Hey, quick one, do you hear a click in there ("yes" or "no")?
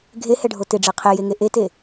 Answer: no